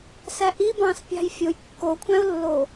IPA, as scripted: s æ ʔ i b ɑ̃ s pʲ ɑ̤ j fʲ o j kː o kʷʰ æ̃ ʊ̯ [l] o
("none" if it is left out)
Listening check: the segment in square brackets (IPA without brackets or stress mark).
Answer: lː